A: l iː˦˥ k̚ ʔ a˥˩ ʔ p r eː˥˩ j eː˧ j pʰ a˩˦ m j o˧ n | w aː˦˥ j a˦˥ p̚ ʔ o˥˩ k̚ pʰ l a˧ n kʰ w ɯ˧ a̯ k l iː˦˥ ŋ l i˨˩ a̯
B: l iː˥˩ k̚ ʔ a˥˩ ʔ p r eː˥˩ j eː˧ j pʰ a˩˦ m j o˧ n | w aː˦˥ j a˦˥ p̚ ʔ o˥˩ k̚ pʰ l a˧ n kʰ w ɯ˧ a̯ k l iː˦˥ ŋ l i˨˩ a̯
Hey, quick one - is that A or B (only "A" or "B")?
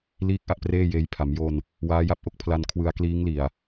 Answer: B